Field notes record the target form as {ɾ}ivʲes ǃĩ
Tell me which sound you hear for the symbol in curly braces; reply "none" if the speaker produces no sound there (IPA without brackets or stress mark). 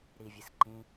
ɾ